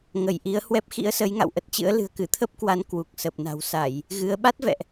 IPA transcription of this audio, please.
ŋə˧˩j ʔi˨˦ə̯hwɛ˦˥p̚ xḭ˧˥ə̯sə˨˦j ŋa̰˧˨wʔə˦˥t̚t͡ɕɨ̰˧˥ə̯ lɨ̤˨˩ə̯kɨ˧˩t̪ʰə˦˥p̚kwa˨˦n kwu˨˩k̚sə˨˩p̚na̤˨˩w sa˧˩˨j | ɣɨ˨˦ə̯ ɓa˦˥t̚vɛ̰˧˨ʔ

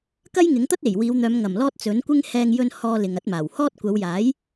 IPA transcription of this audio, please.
kɐ˥jŋɪ˨˥ŋt̪ɐ˥t̚ e˨˩jwiː˨˧wn̪œː˨˧m ŋɐ˨˩mlɔː˧t̚ t͡sɵ˨˥nkʷɪ˥ŋ hɛː˧ŋ jɵ˧n hɔː˧ lɪ˨ŋɐ˨˥t̚maː˨˩whɔː˥t̚ kʷɐ˨˧wjaː˨˥j

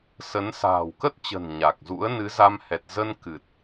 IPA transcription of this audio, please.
sə˨˦nsa̤ː˨˩w kə˦˥t̚t͡ɕə̤˨˩n ɲa˨˩k̚ zṵ˧˥ə̯nɨ˨˦za˧m hɛ˨˩t̚zə˧n kɨ˨˩t̚

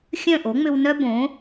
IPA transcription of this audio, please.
xʲœ̃˥˩ʔo˩˥ŋ͡mʏ˧wnœ˥ bõ˩˥

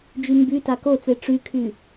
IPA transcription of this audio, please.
d͡ʒymbyta kot͡se ʈ͡ʂykʰy

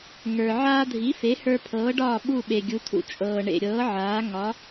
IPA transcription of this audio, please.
ŋə˞˩ ʕaː˧dʱi˩˥fe˩˥ hə˞˧pʰɤː˩˥ɖɒː˥˩ ɓu˥˩ɓe˩ɡʲu˩˥tʰṵ˩˥ t͡ʃʼɤː˩ ɳḛ˩ɾʲɤː˩˥ ʕaː˩˥ ŋɒ˩˥

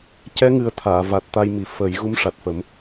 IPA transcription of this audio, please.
cɛ˧˥ŋɨ˨˩˦ə̯ t̪ʰaː˨˩˨va˨˩t̚t̪a˧jmi˨˩ fə˨˩˦j ɣu˧˥mʂa˨˩t̚fə˨˩˦m

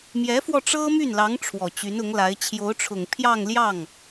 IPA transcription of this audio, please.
mjɛ˧˥fwɔ˧ ʈ͡ʂɤ˥my˥˩nlɑ˧˥ŋ ʈ͡ʂʰwɔ˨˩t͡ɕy˧˥nʊ˧˥ŋla˧˥ɪ̯ t͡ɕʰjo˧˥ʊ̯ʈ͡ʂʰʊ˨˩ŋ pʰjɑ˥˧ŋljɑ˥˩ŋ

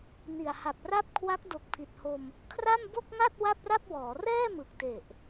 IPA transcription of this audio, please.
ni˨˩a̯ha˨˩p̚ra˥˩p̚ kʰwa˦˥k̚do˨˩k̚pʰi˨˩t̚ho˧m | kʰra˥˩m bo˥˩k̚ŋa˥˩t̚ wa˥˩p̚ra˥˩p̚wɔː˩˦ rɛː˥˩mɯ˨˩k̚te˨˩ʔ

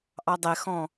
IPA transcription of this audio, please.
ʔɑdˤɛxɔ̃

